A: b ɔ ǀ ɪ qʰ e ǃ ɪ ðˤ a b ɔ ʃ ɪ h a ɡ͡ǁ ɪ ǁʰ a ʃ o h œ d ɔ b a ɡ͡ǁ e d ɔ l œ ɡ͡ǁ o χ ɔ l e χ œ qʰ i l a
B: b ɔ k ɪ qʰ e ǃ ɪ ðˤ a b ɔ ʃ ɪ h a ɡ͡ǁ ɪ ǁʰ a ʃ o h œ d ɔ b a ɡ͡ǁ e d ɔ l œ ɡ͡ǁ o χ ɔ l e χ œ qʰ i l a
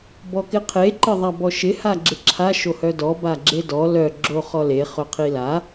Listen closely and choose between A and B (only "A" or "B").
B